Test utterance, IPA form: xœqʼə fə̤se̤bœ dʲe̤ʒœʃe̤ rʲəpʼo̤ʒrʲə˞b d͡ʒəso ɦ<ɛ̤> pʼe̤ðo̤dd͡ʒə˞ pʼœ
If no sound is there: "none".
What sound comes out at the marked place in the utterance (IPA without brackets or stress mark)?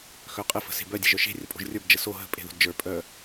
ə̤